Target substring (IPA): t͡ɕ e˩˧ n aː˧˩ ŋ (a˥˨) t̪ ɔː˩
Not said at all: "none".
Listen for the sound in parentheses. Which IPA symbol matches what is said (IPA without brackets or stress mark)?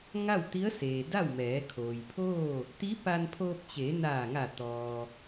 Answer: a˧˩